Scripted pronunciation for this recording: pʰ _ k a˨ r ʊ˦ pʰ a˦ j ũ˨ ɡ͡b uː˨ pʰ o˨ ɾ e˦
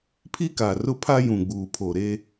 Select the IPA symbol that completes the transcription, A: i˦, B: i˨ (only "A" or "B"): A